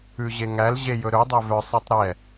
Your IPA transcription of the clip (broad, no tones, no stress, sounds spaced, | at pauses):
ʉ ʑ e ŋ æ l ʑ e j ɵ ɾ ɵ dˤ e v œ sˤ e tˤ ɾ ɛ